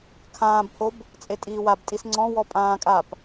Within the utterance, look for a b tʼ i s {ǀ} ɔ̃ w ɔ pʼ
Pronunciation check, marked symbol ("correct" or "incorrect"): incorrect